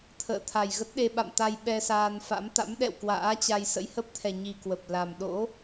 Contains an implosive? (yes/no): yes